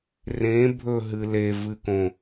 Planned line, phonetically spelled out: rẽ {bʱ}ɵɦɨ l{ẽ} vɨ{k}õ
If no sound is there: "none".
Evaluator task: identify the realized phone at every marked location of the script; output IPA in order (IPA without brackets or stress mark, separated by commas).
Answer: bʱ, e, k